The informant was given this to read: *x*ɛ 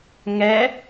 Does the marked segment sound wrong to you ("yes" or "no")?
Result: yes